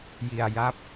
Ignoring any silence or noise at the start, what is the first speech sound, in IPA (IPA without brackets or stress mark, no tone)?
j